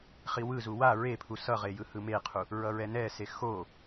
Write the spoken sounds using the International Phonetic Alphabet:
χ i w ɯ z u w a ɹ e pʰ u s ʌ ʁ e j ɯ h ɯ m e qʰ u | ɹ ʌ ɹ ɛ n ɛ s e x o

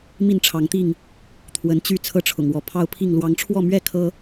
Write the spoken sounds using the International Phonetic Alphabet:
m i˥˨ n ʈ͡ʂʰ ɑ˨˦ ŋ t̪ i˥˨ ŋ | t̪ʰ w ə˨˦ n t͡ɕ y˥˨ t͡sʰ ɤ˥˨ ʈ͡ʂʰ ʊ̰˨˩ ŋ w ɔ˨˦ pʰ ɑ˦ ʊ̯ pʰ i˥˨ ŋ l w ɑ˨˦ ŋ ʈ͡ʂʰ w ɔ˥˨ m ɥ ɛ˥˨ kʰ ɤ˦

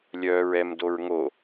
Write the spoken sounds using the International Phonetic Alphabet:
lʲ œː ɹ ɛ m d o ɹ ŋ o

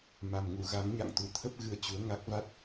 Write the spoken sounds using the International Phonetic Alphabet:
m a˨˩ m ŋ u˧˩ ɣ a˨˦ ŋ ɲ a̰˧˨ ŋ t̪ u˧˩ t̪ʰ ə˦˥ p̚ ɣ ɨ˧ ə̯ t͡ɕ u˨˦ ə̯ ŋ a˦˥ k̚ v a˦˥ t̚

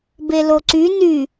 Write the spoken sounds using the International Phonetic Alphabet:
b e l o ǀ y n y

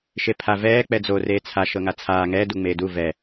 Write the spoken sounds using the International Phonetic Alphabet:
ʃ e pʰ a v ɛː k͡p ɛ d͡z o r eː t͡sʰ a ʃ ɤ ŋ a t͡sʰ aː ŋ ɛː d u ŋ͡m eː d u v ɛ

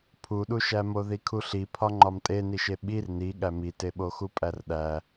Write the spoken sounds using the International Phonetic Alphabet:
pʰ u ɗ u ʃ æ m o ð i kʰ u ɬ i pʰ ɒ ŋ͡ǃ ɒ m tʼ e n i ʃ e ɓ i r n i ɠ æ m i t e ɓ o x u pʼ æ r ɗ æ

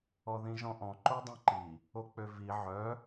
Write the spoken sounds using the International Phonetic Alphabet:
ɔ ð ĩ ʒ ɔ̃ ʔ ɔ̃ ǃ o dˤ ĩ ǃ i | o k͡p ø v i ʕ œ

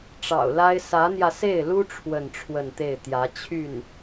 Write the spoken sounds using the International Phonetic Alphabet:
ʈ͡ʂ ɑ̰˨˩ ʊ̯ l a˥ ɪ̯ s ä˧˥ n̪ j ä˧ s e˥˩ ɪ̯ l u˥ ʈ͡ʂʰ w ə˥˧ n ʈ͡ʂʰ w ə˥˧ n t̪ e˥˩ ɪ̯ t̪ j ä˧˥ t͡ɕʰ y˥˩ n

